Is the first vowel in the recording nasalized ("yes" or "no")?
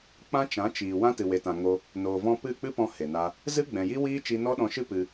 yes